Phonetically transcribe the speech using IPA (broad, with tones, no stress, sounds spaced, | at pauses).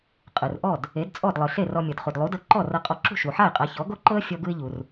qʼ ɯ˩ r ʔ ɔ˥˩ d | e˩˥ d t͡sʼ ɔ˥˩ d lˠ ɯ˩ ɬ e˥˩ r ɔ˧ mʲ ɤ˩ d χ u˩ d lˠ u˩˥ d ɤ˧ ǃ ɔ˥˩ r ɤ˧ qʼ ɔ˧ ǁ ṳ˥˩ ʃ u˩ ħ a˥˩ ɪ̯ qʼ a˩˥ ç ɔ˩˥ ɡ o˥ ǃ ɤ˥ ə̯ fʲ ɔ˥ ɡ ɯ˥ ɪ̯ ʎ u˩ r